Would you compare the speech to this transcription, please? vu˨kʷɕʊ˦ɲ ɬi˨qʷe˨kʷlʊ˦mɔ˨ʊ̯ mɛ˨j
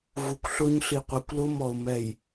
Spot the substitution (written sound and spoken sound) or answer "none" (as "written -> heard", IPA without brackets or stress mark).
ɕ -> ɬ